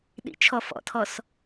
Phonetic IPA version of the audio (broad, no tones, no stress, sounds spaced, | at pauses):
ɗ ḭ t͡ʃʰ ɔ f ɔ̰ tʰ ɔ s